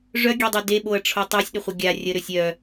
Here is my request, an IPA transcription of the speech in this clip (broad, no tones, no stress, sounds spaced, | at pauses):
ʐ œ ɡʲ e dˤ o d e ɓ o ɐ̯ ʈ͡ʂʰ o tˤ o sʲ ɗ ə χʷ ə ɡʲ a rʲ ə ɾ ø sʲ œ